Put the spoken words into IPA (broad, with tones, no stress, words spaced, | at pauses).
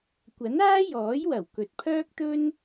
kʷɐ˨˥naː˥jɔː˨˥jwɐ˨˩w kɵ˨t̚pʰœː˥k̚t̪ɵ˥n